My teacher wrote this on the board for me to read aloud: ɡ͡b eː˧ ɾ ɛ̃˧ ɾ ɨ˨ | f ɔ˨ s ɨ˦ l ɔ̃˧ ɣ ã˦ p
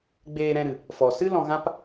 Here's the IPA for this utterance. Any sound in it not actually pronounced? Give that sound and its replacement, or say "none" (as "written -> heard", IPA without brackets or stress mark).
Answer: none